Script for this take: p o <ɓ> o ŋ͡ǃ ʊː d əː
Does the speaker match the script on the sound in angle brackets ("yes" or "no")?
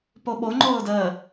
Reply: yes